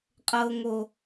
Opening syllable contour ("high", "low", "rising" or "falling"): low